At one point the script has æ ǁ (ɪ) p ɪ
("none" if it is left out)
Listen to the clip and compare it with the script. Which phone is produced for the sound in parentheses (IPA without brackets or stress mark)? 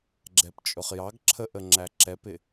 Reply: ɛ